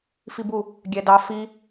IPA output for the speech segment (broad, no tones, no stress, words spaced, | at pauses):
fibu | ɡʲɛdɑ fi